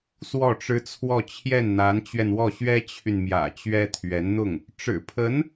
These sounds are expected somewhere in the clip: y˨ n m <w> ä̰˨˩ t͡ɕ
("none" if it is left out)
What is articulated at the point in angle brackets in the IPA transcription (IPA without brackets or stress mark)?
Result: j